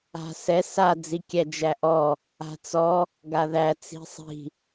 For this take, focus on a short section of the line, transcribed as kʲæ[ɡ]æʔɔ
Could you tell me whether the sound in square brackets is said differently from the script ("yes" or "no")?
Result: yes